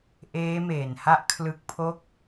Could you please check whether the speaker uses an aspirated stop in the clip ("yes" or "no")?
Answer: yes